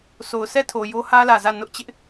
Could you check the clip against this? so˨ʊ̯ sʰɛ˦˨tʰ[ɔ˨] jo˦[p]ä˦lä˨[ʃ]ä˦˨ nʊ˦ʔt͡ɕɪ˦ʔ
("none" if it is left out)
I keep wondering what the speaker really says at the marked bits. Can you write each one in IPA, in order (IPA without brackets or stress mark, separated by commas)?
o˨, h, z